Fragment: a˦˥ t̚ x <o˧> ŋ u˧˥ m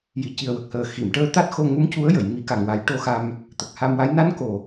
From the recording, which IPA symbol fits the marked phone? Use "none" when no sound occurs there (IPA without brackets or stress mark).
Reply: o˧